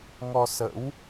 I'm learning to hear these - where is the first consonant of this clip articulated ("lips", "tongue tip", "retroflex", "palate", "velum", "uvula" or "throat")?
velum